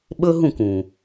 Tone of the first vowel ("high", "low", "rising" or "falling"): high